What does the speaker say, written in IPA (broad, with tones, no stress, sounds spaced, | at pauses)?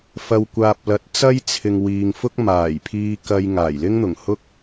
f ɐ˨ w kʷ aː˨ p̚ l ɐ˨ t̚ t͡s ɐ˥ j t͡sʰ ɪ˨ ŋ w iː˨ ŋ f ʊ˥ k̚ m aː˨˩ j pʰ iː˧ k ɐ˥ j ŋ aː˨˩ j l ɪ˥ ŋ n̪ ʊ˨˩ ŋ h ʊ˥ k̚